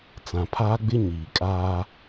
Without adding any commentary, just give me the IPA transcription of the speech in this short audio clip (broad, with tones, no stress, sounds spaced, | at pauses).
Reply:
t͡s ã˨ pʰ aː˦ ɡ͡b ɪ˦ ɲ iː˨ kʼ aː˦